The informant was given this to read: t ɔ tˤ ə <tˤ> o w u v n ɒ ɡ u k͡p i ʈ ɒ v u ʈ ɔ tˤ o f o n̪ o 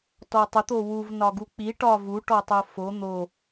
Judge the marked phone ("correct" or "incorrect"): incorrect